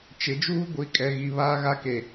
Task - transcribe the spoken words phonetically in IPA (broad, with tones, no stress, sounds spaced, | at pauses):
t͡ʃ ɪ˨˦ d͡ʒ uː˦ ɡʷ i˨˦ kʼ ɛ˨ ɣ i˨ β aː˦ ɣ a˦ k e˨